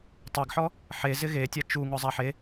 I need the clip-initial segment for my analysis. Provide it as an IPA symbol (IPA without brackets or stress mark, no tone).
tˤ